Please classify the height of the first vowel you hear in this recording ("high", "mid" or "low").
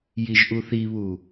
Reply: high